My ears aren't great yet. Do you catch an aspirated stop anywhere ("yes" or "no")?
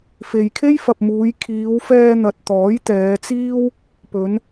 yes